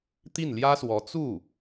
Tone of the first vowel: falling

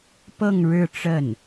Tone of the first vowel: falling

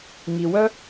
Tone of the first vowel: low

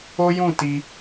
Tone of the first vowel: high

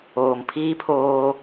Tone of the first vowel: low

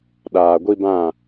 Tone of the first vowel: low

